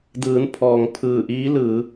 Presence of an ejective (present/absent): absent